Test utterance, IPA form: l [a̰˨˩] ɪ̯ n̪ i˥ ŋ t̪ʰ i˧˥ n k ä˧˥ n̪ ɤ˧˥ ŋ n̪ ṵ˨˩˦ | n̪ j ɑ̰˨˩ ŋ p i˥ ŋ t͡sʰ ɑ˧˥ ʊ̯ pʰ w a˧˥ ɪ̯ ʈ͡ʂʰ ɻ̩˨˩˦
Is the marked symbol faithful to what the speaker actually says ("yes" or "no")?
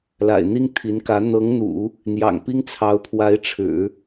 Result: yes